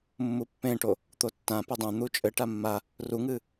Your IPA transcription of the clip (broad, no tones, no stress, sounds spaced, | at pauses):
mː u pː ẽ ʈ o | t̪ o tː ã p e dˤ ẽ n̪ u t͡ʃʼ ɘ ʈ a mː a | r u ŋ ɨ